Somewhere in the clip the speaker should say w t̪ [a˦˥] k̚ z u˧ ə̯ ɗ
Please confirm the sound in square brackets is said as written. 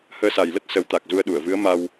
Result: no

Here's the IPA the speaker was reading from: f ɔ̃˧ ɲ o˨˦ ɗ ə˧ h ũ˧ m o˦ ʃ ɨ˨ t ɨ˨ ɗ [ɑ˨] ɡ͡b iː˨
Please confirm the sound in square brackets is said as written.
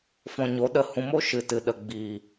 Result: no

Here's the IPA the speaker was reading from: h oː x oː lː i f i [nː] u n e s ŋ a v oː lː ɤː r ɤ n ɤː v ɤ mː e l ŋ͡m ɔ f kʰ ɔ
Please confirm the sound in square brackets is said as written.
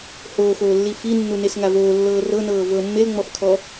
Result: yes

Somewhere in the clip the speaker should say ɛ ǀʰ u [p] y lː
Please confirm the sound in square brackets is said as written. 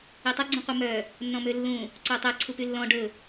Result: yes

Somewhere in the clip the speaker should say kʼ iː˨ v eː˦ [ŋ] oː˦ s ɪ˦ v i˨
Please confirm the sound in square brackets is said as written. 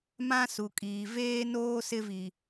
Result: no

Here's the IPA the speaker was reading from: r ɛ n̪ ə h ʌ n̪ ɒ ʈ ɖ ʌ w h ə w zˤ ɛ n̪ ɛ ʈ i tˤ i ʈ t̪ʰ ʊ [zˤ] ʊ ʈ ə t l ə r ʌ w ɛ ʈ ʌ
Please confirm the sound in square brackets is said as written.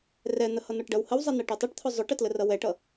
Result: yes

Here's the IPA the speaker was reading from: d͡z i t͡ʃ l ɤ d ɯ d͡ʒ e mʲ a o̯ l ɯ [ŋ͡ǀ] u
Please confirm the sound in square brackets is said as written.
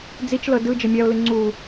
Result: yes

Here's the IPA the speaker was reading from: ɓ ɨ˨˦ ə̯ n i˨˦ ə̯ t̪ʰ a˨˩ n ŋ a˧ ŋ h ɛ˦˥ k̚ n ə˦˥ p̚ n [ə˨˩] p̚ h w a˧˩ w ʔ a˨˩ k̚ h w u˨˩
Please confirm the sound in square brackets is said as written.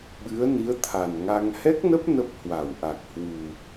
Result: no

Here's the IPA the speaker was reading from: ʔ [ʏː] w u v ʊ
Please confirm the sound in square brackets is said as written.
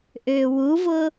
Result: yes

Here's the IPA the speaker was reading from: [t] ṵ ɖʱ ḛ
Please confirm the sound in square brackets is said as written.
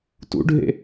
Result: yes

